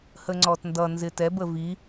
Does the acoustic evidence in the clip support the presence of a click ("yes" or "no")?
yes